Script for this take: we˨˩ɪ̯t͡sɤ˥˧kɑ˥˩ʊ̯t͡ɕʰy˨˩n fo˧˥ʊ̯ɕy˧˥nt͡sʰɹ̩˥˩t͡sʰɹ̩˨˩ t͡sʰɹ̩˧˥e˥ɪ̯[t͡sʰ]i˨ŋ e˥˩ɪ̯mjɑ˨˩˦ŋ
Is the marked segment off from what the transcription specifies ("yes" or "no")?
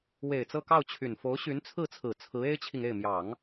yes